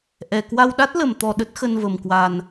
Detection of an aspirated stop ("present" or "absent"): absent